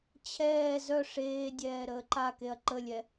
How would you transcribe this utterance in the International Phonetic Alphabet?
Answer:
t͡ɕʰɛː zœ ʂeːdʲɛː ɾəːǃakeɐ̯ ǃəlʲɛ

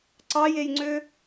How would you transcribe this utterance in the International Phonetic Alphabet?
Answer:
ǀɑjejŋ͡ǀø

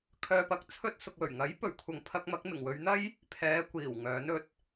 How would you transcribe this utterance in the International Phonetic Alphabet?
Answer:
kʰœː˧pɐ˨k̚ t͡sʰɵ˥t̚ sʊ˨k̚wɵ˨˩ɥŋɐ˨˥j pɵ˨˩ɥkʷʰɐ˨ŋpʰɐ˧k̚mɐ˨˥k̚ mɪ˨˩ŋ wɵ˨˧ɥn̪ɐ˥j | pʰɛː˨˧kʷiː˨˩w ŋœː˨˥n ɵ˧t̚

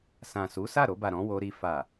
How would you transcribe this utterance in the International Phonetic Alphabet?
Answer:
sã˨su˨˦ sa˦˨ɾo˧ba˨ ɾɔ̃˨˦wo˧ɾi˧ fa˨

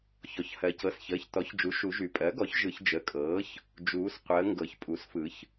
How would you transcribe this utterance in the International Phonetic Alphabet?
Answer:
çɔ˩˧˩çhɜ˩˧cɤ˩˧˩sçəː˩˧˩ç tɔ˩˥çd͡ʒu˩˥ ʃu˩˧ʒy˩˧ pʼɜ˩˥ɡɔ˩˥ç ʒɯ˩˧çd͡ʒə˩˧˩kʼɤː˩˥ç | d͡ʒuː˩˧sqʷəː˩˧ ŋɡɤ˩˧çpʼu˩˥sfɯ˩˧ç

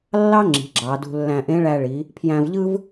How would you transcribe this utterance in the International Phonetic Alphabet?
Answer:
lːɑ˥ŋ͡ǁi̤˩˧ ɡ͡ǁɑ˩˧dṳ˧lːæ̃˧ ʔẽ˧˥ɭæ˧ɭi˩˧ | pʰjæ̃˧vʎɯ˥v

